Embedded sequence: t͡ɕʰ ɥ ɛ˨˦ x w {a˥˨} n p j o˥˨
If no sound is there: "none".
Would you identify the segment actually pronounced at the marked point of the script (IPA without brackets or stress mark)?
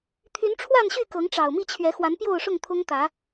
a˨˦